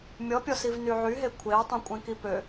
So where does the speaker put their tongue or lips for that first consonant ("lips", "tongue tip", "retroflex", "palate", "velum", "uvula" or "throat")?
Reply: lips